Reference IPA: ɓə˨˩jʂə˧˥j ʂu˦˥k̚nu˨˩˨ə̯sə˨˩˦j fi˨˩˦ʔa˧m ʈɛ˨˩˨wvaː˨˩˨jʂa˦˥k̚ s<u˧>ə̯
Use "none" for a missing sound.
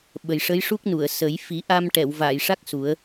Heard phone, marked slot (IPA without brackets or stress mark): u˨˩˦